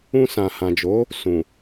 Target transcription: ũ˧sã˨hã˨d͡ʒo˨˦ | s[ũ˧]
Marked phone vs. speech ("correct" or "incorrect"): incorrect